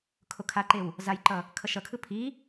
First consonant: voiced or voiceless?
voiceless